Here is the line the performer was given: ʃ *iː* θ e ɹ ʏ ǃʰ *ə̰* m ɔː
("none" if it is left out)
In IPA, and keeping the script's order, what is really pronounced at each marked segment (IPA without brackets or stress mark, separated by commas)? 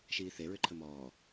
iː, ə